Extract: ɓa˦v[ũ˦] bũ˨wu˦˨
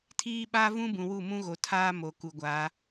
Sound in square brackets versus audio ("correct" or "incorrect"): correct